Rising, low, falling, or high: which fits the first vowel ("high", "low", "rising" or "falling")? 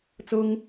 high